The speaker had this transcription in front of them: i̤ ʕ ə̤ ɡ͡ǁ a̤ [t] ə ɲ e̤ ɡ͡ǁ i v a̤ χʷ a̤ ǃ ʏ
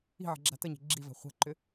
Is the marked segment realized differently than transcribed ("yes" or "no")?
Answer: no